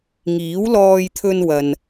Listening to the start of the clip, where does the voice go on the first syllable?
rising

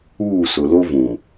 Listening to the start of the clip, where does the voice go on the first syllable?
falling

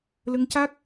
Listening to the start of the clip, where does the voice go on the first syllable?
rising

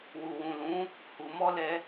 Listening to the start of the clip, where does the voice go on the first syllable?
low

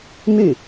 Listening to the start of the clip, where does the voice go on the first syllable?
falling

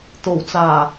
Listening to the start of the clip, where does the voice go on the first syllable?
low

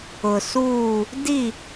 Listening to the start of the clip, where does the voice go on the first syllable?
low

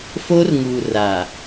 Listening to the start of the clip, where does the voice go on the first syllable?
high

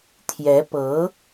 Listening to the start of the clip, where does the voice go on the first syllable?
rising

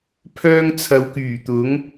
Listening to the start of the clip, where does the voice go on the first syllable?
high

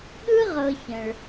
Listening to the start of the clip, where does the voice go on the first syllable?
high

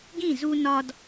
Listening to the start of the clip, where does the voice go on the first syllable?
falling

